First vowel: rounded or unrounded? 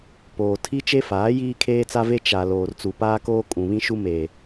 rounded